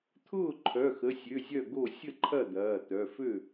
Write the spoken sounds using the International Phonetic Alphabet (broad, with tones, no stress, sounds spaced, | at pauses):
t̪ʰ ʊː˥˩ ǃʰ œ˩˧˩ x ə˩˧˩ sʲ ø˩˧˩ zʲ œ˥˩ ɡ o˥˩ sʲ ə˥˩ ǃʰ ɐ˥˩ d̪ ɐː˩˧˩ t̪ œ˩˧˩ f ø˥˩